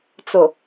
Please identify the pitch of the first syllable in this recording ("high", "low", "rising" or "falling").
low